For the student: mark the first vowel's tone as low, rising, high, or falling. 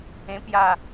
high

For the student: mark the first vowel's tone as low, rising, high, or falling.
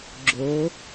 rising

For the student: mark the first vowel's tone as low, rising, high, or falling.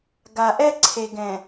low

